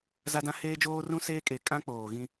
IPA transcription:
z a˦ d ã˦ h eː˦ d͡ʒ oː˦ r ũ˦ s eː˦ kʼ e˨˦ kʼ ã˦ k͡p oː˨ ɣ ĩ˦

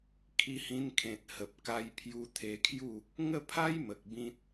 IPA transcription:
kʰ i˧ h ĩ˧ n kʰ ẽ˨ t̚ h ə˨ p̚ k a˧ j pʰ j u˧ t̪ʰ e˧ kʰ j u˥˧ | ŋ ə˥˧ pʰ a˦ j m ə˨ k̚ b ĩ˦ t̚

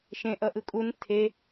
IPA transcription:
ʃ ẽ ʔ ʌ ʔ ɯ kʼ u n tʰ e

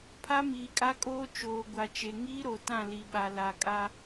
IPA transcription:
pʰ a˦ m iː˨ kʼ a˦ kʼ oː˦ t͡ʃ oː˨ ɡʷ a˨ t͡ʃ e˨ ŋ iː˦ ɾ o˨ t ã˦˨ l i˨ ɓ a˨ l a˨ kʼ a˦

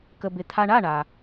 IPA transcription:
k ə˧ b ɪ˧ t̪ʰ a˧ ɳ a˧˥˧ ɳ a˩

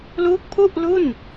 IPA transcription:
l uː˦˥ k̚ pʰ u˥˩ ʔ l u˥˩ n

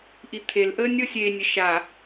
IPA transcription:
ʔ i t̪ʰ e l ʔ əː nʲ ɤ sʲ eː nʲ ə ʃ a

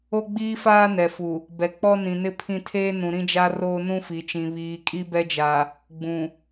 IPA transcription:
o˦ ɡ͡b iː˦ f aː˦ n ɛ˨ f u˨ | b ɛ˨ k͡p ɔ˦ n ĩ˨ n ɪ˦ pʰ ĩ˦ tʰ eː˦ n ũ˨ ɾ ĩ˦ d͡ʒ a˦ r oː˦ n ũ˦ f i˨ t͡ʃ ĩ˨ β iː˨ kʼ i˦ b ɛ˦ d͡ʒ a˨ | ɡ͡b ũ˨

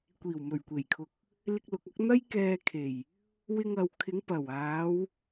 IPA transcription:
kʷ iː˨˩ w m ɵ˨˩ ɥ kʷ e˨˩ j kʰ ʊ˨ k̚ | l ɪ˧ k̚ l ʊ˨ k̚ ɐ˨˥ k̚ n̪ ɐ˥ j k ɛː˧ kʰ e˨˩ j | w ɪ˧ ŋ ɐ˨ w kʰ ɪ˨˧ ŋ p ɐ˨˩ w aː˨˧ w

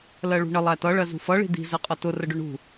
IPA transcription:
l ɜ ɭ ṳ ɳ ə lˠ æ t ʌ ɭ ɜ z ṳ f ʌ ɭ i̤ d̪ i̤ z ɜ qʼ ʌ t ʊ r ə ɖ ʊ ɳ ṳ

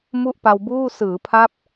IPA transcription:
m u˥˩ ʔ p a˧ w b uː˥˩ s ɯː˩˦ pʰ a˦˥ p̚

